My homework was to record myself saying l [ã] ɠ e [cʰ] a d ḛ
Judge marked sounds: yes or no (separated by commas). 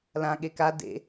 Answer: yes, no